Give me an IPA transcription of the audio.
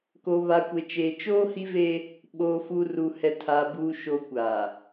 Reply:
k o˨ β a˨ kʷ e˨ t͡ʃ eː˨ t͡ʃ oː˦ h i˦ v e˦ | ɓ oː˨ f uː˨ r u˨ h ɛ˨ tʰ a˨ b uː˨ ʃ o˨ kʷ a˨

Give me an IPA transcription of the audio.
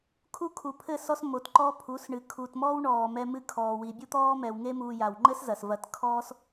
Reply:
kʰ u˦ kʰ u˨ pʰ ɘ˦˨ s ɔ˦ s m o˨ t ǃ ɔː˦ pʰ u˨˦ s ɳ ɨ˨ kʰ u˨ t m ɔː˦ w ɳ ɔː˨ m ɛ˧ m ɨ˧ kʰ ɔː˨ w i˨ bʲ u˦ t̪ ɔː˦ m ɛ˨ w ŋ e˦ m uː˧ j a˨ w ŋ͡ǃ ɘ˦ s z ɐ˨ s v ɐː˧ t kʰ ɔː˦ s

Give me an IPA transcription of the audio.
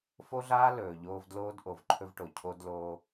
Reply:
f o˥ ɮ aː˥ l ɵː˨ ʎ oː˦ v d l oː˥ d ʔ o˨ v ǃʰ ɵ˥ v ʈ o˨ cʰ o˥ d l oː˥

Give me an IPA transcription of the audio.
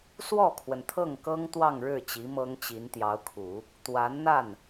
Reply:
s w ɔ˥˩ kʰ w ə˩ n t̪ʰ ɤ˥˩ ŋ k ɤ˥ ŋ t̪ w ɑ˥˧ ŋ ɻ ɻ̩˥˩ t͡ɕ i˧˥ m ɤ˥ ŋ t͡ɕ i˧˥ n t̪ j ɑ˧˥ ʊ̯ kʰ u˨˩˦ | t̪ w a˧˥ n n̪ a˥˩ n

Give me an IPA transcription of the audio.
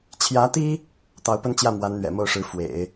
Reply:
t͡ɕʰ j ä˧˥ t̪ i˥ | t̪ ɑ˧˥ ʊ̯ p ə˥ n t͡ɕ j ä˥˩ m w a˧˥ n n̪ ɥ ɛ̰˨˩ m o˥˩ ʊ̯ ʂ ɻ̩˧˥ f w ḛ˨˩˦ ɪ̯

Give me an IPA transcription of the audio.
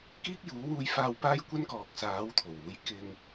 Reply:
k iː˥ k̚ j uː˨˥ w uː˧ j f aː˧ w p aː˥ j kʷ ɐ˥ n k ɔː˨ k̚ s aː˨˥ w t̪ʰ o˨˩ w uː˨˥ j k ɪ˧ ŋ

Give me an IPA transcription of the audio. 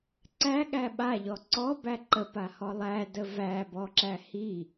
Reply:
ǀ æ ɠ æ ɓ a ʎ ɔ ǀ ɔ b æ ǃ ə p a h ɔ lˠ æ d ə v æ b ɔ ǁ æ h i

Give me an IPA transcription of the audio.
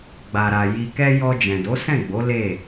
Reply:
ɡ͡b a˨ ɾ a˨ j i˨ k ɛ˧ j ɔ˧ d͡ʒ ɛ̃˨ d o˨˦ s ɛ̃˦˨ ɡ͡b o˨˦ l e˦˨

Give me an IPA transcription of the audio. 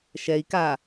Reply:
ʃ ɛ i̯ k a

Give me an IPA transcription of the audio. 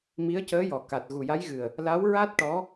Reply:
m i˧˥ ə̯ c əː˧˥ j ɔ˨˩ k a˨˩ t̚ ɣ u˨˩ j a˧˥ j ɣ ɨ˨˩ ə̯ | l a˧˥ w ɹ a˦˥ t̚ ʈ ɔ˧˥

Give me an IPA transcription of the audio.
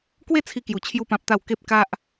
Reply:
k w e˥˧ t͡sʰ i˧ k j u˨˩ t͡ɕʰ j u˥˧ p ã˦ p̚ t̪ a˥˧ w k e˦ p̚ k a˦ ʔ

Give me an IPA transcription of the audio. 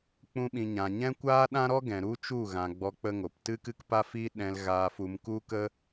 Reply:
k͡p ũ˦ ɓ ĩ˧ ɲ ã˨ ɲ ɛ̃˦ kʷ aː˦ ɗ ã˦ ɾ ɔ˦ ɡ ɛ̃˨ ɾ u˦ t͡ʃ u˦˨ ɣ ã˨ ɡ͡b ɔ˧ k͡p ə˦ ŋ o˨ p t ɨ˦ k ɨ˦ k p a˦ f i˦ ɗ ɛ̃˧ l ɣ aː˧ f u˧ m k u˦ k ə˦

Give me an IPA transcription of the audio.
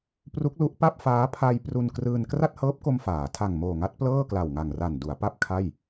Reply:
p r u˦˥ k̚ l u˦˥ ʔ p a˥˩ p̚ f aː˦˥ pʰ a˧ j p r u˧ n k r ɯː˧ n k r a˥˩ t̚ h ɤː˦˥ p̚ k o˧ m f aː˩˦ tʰ a˨˩ ŋ m oː˨˩ ŋ a˦˥ t̚ p l ɤː˥˩ k l a˨˩ w ŋ a˨˩ ŋ r a˨˩ n d u˩˦ a̯ p a˥˩ p̚ kʰ a˥˩ j

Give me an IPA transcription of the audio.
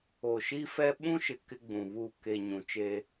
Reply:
o˨ ʃ i˦ f ɛ˦ ɓ ũ˦ ʃ ɪ˨ k ɪ˦ ɡ͡b ũ˨ β u˦˨ k e˨ ɲ ũ˨ t͡ʃ eː˦

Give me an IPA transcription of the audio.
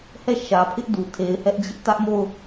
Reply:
h ɛ˦˨ ʃ ä˨ pʰ ɪ˦ ʔ d u˨ tʰ e˨ ɪ̯ h ɛ˦ ʔ d͡ʑ ɪ˦ ʔ t ä˦ ʔ m o˦˨ ʊ̯

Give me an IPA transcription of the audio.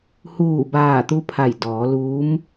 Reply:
h uː˧˩ b aː˧˩ t̪ u˧ pʰ a˧˩ j d ɔː˩˧ l uː˧˥ m

